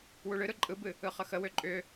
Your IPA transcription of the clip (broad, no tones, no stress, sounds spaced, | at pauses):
w u ɭ ɨ ɾ ɯ ǃʼ ɯ b ɨ | ɯ χ ə x ə w ʏ ǃʼ ʏ